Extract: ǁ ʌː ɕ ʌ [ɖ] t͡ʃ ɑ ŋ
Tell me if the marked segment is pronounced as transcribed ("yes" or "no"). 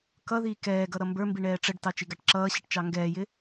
no